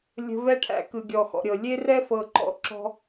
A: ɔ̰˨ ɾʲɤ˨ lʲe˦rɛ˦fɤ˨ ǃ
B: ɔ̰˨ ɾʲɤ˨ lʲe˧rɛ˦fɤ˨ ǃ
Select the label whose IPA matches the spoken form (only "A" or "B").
A